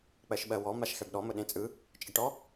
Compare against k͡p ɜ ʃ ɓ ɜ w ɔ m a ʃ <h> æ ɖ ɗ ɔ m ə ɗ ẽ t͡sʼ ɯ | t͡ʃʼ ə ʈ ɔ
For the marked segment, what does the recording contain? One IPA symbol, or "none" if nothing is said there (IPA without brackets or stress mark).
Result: x